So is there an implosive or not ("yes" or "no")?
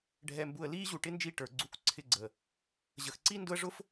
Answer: no